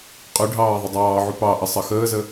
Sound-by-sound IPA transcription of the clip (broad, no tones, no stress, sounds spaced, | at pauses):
qʼ ʉ ɖʱ ɑː ðˤ ə dˤ ɑː ʕ u p ɑ ʔ ə sˤ ʌ x əː z ə